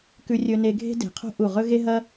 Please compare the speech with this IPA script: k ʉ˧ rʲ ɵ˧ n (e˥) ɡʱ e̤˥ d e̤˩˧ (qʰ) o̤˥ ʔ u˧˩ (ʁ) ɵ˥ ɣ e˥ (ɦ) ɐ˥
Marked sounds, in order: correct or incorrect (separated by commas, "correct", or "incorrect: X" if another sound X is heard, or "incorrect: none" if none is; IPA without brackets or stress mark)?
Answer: incorrect: e˧, correct, correct, correct